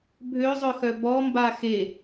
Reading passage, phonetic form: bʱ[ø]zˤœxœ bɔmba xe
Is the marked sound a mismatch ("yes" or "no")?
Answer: no